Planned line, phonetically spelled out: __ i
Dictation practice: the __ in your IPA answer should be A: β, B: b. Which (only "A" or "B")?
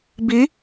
B